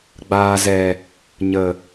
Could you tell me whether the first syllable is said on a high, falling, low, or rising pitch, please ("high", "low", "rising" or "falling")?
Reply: low